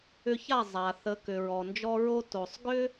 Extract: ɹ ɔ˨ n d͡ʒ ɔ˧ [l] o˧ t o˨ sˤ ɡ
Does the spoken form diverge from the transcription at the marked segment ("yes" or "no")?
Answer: yes